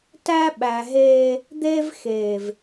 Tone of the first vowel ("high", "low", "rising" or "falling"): high